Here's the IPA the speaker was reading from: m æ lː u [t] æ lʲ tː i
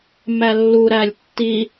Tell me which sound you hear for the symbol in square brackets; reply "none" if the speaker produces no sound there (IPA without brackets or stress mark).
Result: ɾ